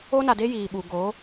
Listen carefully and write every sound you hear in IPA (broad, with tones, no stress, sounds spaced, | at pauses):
o˦ n a˨ d e˦ j iː˨ ɓ u˨ ɡ oː˨˦